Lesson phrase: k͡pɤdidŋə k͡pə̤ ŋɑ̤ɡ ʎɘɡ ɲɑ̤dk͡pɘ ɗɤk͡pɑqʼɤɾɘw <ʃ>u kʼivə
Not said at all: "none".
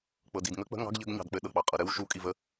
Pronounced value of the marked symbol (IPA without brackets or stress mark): ʃ